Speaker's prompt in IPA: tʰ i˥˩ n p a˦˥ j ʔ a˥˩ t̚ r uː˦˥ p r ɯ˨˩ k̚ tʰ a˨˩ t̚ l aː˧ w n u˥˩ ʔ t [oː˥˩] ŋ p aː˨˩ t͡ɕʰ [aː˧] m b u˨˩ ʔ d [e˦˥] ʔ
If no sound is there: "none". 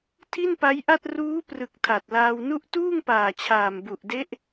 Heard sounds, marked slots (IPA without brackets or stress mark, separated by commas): uː˥˩, aː˨˩, e˦˥